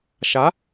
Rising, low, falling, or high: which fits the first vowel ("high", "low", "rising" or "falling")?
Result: rising